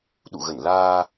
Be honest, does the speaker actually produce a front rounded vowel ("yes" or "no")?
no